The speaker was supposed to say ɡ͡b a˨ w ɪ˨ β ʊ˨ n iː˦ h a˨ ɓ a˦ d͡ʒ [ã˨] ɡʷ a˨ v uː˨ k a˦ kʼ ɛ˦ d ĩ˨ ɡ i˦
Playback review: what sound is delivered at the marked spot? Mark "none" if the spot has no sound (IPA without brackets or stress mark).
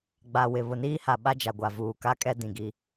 a˨